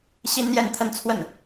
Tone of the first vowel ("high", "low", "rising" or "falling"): high